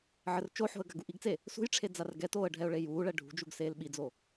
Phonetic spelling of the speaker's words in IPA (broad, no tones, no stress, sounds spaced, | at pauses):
ʕ ɘ r t͡ʃ o ħ o̤ ə̯ ɡ a ɡ u ʔ i ɡ t͡s e | s ṳ j ʈ͡ʂʰ e d͡z a r ɡ ɛ t oː ə̯ ɖʱ ɛ ʊ̯ ɭ e j uː ɭ ɛ ɖʱ ṳ d͡ʒ u ɡ s eː l ɓ i d͡z o